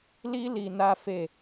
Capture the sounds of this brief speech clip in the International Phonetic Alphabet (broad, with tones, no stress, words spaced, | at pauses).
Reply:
li˦li˧ na˦fe˦˨